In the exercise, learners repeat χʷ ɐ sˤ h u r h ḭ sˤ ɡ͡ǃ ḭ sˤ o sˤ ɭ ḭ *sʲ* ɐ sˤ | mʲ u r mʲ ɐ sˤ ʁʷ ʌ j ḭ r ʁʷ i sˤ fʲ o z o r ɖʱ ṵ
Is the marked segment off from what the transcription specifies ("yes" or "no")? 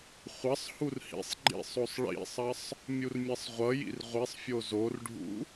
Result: yes